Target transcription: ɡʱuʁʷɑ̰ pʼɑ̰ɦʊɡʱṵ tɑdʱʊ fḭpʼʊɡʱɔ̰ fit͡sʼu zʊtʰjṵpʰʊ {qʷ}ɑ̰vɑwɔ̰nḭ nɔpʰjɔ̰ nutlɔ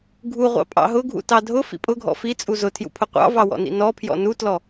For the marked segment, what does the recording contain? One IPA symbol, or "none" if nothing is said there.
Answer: qʷ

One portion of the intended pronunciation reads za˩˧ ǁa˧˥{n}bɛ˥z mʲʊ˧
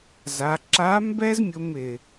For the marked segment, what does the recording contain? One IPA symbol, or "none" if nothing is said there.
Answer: m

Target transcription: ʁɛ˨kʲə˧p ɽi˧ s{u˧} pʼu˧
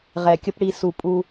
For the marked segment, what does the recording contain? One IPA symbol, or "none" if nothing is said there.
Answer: u˧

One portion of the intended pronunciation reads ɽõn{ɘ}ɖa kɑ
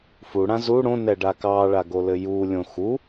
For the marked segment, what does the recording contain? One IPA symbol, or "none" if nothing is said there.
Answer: ɛ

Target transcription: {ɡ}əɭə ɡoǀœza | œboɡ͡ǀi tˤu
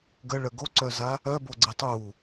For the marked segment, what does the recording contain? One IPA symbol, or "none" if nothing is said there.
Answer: ɡ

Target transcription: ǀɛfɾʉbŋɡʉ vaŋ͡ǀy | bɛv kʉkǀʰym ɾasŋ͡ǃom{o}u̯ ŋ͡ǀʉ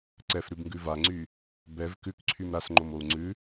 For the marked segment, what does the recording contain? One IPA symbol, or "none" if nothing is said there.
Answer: o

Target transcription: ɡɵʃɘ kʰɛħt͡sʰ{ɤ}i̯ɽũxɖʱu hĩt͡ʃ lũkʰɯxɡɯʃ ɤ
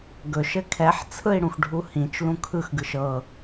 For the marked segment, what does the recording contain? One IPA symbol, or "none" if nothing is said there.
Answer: ɯ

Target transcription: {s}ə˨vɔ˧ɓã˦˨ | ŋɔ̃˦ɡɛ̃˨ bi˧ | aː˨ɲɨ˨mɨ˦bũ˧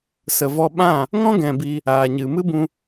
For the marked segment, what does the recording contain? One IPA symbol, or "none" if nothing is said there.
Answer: s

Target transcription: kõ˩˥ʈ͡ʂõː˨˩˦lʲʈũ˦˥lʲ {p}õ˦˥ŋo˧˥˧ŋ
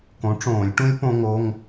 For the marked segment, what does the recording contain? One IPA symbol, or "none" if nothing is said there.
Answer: p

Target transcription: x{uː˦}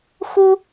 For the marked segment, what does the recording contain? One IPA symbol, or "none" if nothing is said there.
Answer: u˦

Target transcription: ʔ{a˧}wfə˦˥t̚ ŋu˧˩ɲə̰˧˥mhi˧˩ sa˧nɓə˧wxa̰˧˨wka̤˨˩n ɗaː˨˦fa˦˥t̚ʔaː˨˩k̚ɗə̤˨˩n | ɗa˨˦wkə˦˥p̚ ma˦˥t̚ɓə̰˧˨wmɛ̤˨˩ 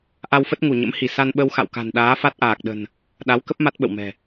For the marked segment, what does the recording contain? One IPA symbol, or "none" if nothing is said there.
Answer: a˧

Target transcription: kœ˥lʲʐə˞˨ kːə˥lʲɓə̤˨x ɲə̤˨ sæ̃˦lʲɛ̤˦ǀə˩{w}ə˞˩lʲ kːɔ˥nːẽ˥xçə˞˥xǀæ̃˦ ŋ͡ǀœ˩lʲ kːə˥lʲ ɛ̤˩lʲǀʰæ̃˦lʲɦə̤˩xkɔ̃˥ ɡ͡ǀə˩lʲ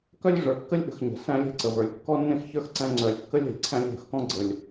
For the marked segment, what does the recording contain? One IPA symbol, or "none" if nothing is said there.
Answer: v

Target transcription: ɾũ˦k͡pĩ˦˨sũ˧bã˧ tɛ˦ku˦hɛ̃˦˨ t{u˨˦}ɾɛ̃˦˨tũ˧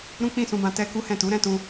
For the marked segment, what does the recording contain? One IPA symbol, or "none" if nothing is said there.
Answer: u˨˦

